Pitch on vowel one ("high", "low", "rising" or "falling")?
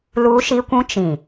high